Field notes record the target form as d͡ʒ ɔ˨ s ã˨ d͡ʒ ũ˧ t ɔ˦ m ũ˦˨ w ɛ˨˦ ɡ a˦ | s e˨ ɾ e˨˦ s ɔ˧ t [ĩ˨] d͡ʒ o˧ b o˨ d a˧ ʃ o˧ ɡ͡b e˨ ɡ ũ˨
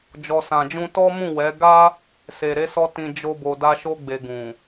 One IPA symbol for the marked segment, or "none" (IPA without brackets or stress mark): ĩ˨